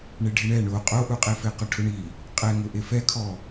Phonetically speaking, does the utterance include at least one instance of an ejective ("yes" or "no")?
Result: yes